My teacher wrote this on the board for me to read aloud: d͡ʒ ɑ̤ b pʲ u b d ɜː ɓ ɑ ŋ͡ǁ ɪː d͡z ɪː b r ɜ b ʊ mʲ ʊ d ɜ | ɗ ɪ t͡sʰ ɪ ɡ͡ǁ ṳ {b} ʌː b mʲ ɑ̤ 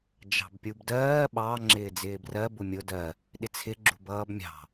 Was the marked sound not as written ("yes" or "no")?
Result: no